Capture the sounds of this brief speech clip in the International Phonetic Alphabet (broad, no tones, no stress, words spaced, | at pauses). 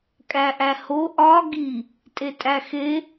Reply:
kʼæʔæho ʔɒ ɡi | tʼetʼæxe